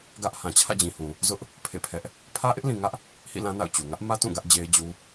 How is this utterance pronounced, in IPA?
ɡä˦ʔ hã˨t͡ɕʰä̰˦˨d͡ʑĩ˨hũ˨ | zʊ˦ʔ | pʰḛ˦˨pʰɛ˦ʔ | pʰä˦ʔɪ˦ʔlĩ˨ŋä˦ʔ | hḭ˦˨lã˦ na̰˦˨ʊ̯t͡ɕu˨ ŋä˦ʔmä˦ tũ˦˨ɡä˦ʔ d͡ʑe˦ɪ̯d͡ʑu˦

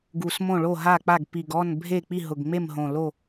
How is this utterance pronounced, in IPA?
ɡu˨˩s mõ˥˨ɭo˥˨ɦa˥˨k͡pa˥˨ɡ pi˨˩ɡɔ˥˨n bʱe˥˨ k͡pi˥˨ ɦʊ˨˩ɡŋ͡me˥˨mɦõ˨˩lo˥˨

